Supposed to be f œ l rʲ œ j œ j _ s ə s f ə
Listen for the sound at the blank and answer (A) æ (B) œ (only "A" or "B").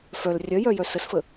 B